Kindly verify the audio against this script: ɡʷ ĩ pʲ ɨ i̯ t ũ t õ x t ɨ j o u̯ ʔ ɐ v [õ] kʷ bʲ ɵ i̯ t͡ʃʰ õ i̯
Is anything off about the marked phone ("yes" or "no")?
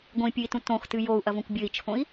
no